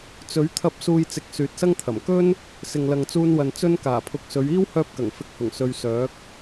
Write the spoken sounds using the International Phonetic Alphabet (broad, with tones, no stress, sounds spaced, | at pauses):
t͡s ɵ˨˥ ɥ t̪ʰ ɐ˧ p̚ s uː˧ j t͡s ɪ˨˥ k̚ s yː˨ t̚ s ɐ˥ ŋ t̪ʰ ɐ˨˩ m k ɵ˥ n | s ɪ˨ ŋ l ɐ˨ ŋ t͡s uː˧ n w ɐ˨ n t͡s ɵ˧ n k aː˨˩ pʰ ʊ˨˥ k̚ s ɵ˨˧ ɥ iː˥ w h œː˧ p̚ k ɐ˨˩ ŋ f ɪ˨˥ k̚ h ʊ˨˩ ŋ s ɵ˧ ɥ s œː˨˥ k̚